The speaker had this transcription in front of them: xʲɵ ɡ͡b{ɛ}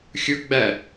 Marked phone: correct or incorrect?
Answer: incorrect